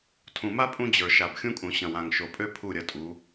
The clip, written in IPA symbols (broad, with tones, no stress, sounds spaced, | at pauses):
tʰ ũ˨ m a˦ pʼ ũ˦ d͡ʑ ə˞˨ ʃ a˨ b xʲ ũ˦ kʼ ũ˨ ɕ ɐ̃˨ w ã˨ ŋ ʃ o˨ pʼ ø˦ pʰ u˦˨ ɾʲ ɐ˨ tʼ u˨˦